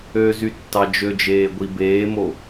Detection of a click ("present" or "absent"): absent